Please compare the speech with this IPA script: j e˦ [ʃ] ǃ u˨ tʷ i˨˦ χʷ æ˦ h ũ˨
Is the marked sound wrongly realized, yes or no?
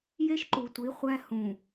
no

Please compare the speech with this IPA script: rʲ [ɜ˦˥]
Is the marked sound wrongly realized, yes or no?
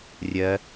no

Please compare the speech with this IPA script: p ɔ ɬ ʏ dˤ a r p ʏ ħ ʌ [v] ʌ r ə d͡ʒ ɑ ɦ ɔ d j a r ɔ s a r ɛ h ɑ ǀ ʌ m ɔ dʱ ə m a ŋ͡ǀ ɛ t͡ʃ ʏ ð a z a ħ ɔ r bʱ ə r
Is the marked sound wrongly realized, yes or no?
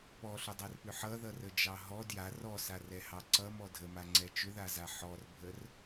yes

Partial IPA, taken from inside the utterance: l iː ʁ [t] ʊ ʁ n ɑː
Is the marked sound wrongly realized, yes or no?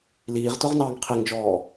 no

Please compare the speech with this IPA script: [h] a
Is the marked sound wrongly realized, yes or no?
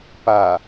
yes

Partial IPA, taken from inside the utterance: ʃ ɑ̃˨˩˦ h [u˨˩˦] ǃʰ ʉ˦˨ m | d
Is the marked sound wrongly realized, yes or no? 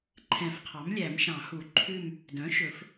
no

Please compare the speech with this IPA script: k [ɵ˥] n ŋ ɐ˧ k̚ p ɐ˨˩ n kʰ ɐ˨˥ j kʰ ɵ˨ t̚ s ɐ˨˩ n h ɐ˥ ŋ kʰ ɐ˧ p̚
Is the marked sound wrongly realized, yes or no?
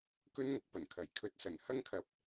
no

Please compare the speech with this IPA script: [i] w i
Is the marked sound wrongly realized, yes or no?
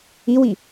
no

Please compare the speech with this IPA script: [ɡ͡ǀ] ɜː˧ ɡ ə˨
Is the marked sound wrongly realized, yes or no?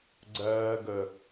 no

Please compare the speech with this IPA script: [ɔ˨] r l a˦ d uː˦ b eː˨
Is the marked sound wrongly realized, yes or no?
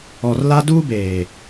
no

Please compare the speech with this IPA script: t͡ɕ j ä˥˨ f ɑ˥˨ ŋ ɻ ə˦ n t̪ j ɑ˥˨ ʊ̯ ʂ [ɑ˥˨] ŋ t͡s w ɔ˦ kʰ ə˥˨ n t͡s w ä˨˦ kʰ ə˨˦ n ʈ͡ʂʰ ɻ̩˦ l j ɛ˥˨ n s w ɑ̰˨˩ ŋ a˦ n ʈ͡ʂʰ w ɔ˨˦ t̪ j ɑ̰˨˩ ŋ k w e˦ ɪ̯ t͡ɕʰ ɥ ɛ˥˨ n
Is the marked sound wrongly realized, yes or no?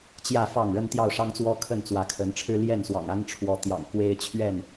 yes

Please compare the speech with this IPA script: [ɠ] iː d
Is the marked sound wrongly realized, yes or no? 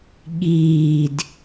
no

